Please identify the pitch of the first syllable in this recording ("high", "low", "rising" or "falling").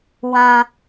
low